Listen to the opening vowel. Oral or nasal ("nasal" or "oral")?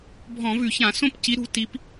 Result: nasal